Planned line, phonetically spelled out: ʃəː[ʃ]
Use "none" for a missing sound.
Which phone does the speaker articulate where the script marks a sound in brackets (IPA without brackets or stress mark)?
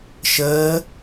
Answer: none